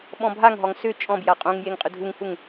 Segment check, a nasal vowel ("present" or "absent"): present